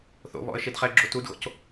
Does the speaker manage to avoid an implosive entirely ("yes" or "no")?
yes